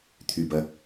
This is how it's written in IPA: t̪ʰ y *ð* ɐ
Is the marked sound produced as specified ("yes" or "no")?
no